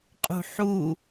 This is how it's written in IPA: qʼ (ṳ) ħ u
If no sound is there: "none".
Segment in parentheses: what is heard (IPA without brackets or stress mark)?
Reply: ṳ